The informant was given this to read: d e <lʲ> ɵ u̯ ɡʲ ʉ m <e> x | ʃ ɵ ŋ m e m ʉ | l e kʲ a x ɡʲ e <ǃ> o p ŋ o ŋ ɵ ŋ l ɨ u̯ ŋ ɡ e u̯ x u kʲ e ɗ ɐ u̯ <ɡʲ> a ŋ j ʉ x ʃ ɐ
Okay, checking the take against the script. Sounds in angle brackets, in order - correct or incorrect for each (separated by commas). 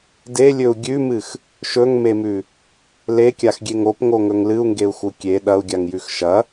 correct, incorrect, incorrect, correct